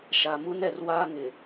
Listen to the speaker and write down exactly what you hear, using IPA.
ʃ a˨ m u˦ n ɛ˨ r w aː˦ ŋ ɪ˨

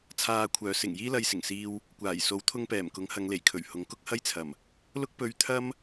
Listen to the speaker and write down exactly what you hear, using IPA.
t͡sʰ aː˧ kʷʰ œː˨˧ s ɪ˨˩ ŋ j iː˥ l ɐ˧ j s ɪ˨˩ ŋ s iː˧ w | kʷ aː˨˩ j s o˨˥ w t̪ʰ ʊ˧ ŋ p ɛː˨˩ m k ʊ˨˥ ŋ h ɐ˨˧ ŋ l e˨˩ j kʰ ɵ˨˩ ɥ h ʊ˨˥ ŋ k ʊ˥ k̚ h ɐ˥ j t͡sʰ ɐ˨˩ m | l ʊ˥ k̚ p ɵ˧ ɥ t̪ʰ ɐ˥ m

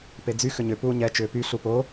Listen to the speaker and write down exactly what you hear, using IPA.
p e d͡z y x ʏ ɲ ʏ p uː ɲ ɛ t͡ʃ ʏː p y ɬ u p o

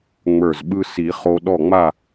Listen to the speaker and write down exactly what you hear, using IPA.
ŋ͡m ə˞˧˩ z ɓ ɯ˧ s i˨˩˦ χ o˧ ɗ ɔ˧˩ ŋ͡m a˧˩

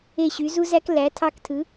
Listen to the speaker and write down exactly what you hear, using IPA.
e˦˨ ɕ y˩˥ z u˥ z æ˥ k l æ˩˥ tʰ ɑ˦˨ k tʰ ɯ˩˥

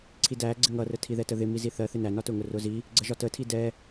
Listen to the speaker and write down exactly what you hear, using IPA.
ǀʰ i d æ ɡ͡ǀ ɪ ŋ ʌ r ə tʰ i ð ɛ t ə ð ɪ m i z i θ ɜ θ ɪ n æ n ɒ t ʊ ŋ ʊ r ʊ z i | ɡ͡ǀ ə ʒ ɒ t ə tʰ i d ɛ

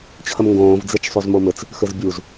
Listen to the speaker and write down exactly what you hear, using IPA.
t͡ɕʰ ə m ŋ ɡ õː v d͡z e t͡ʃ sˤ u z m o m ɘ t͡s | x ɘ z bʲ u z

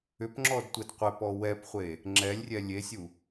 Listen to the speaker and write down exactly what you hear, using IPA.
ʏ p ŋ͡ǁ ɔ d tʷ e d qʷ e p ɔ w ɛ p χʷ e | ŋ͡ǁ ɛ lʲ rʲ ɛ lʲ e sʲ u

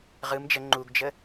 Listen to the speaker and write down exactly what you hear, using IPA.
ʁ ɯ m d͡ʒ ə ŋ͡ǃ u ɡ d͡ʒ ə

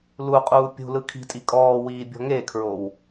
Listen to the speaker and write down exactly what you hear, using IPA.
l u qʼ uː pʲ ṳ l ɯ kʰ i̤ tʼ i kʼ ɔː w iː bʲ ɔ̤ ŋ e kʰ ɹ o w

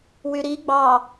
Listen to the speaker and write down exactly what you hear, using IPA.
w y ɾ i ɡ͡b ɑ

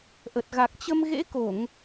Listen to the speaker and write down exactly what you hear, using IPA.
ʔ ə˨˩ t̚ ɣ a˨˩ k̚ t͡ɕ ə˧ m ɣ ḛ˧˥ k o˧˩˨ ŋ

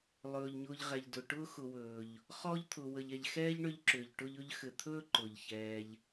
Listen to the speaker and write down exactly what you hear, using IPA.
lˠ ɵː˩ ʎ ɲ ʊː˨ ʎ ʁ ɛ˩ ʎ d ʊ˩ ʈ ʊː˥ x ʊ˨ w ɵː˩ ʎ | χ ɔ˥ ʎ t̪ʰ ʊː˨ w ə˨ ʎ ɛ˨ ʎ x ɛː˥ ʎ ɳ ʏ˦ ʎ ǁ ʏː˩ ʎ ʈ ʊ˦ ʎ ɵ˦ ʎ x ɘ˨ t̪ʰ ɵː˥ ǃ ʊː˩ ʎ ç ɛː˨ ʎ

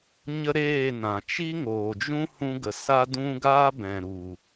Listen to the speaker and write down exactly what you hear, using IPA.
ɲ ə˦ ɾ eː˦˨ n ã˨ t͡ʃ i˦ ŋ oː˨ d͡ʒ ũ˦ h ũ˧ ɡ ə˨ s a˦ d ũ˦ ɡ aː˦ b ɛ̃˨ ɾ u˨

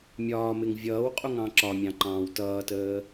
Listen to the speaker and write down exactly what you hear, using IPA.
mʲ ɒː m ɪ ŋ vʲ ʌː w qʼ u ŋ ɑ̃ ǁ ɒ mʲ ɑ̃ ǃ ɑ̃ː w t ʌː t əː

